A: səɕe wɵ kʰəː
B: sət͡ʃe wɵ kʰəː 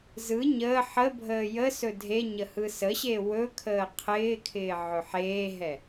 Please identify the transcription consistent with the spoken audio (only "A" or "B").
A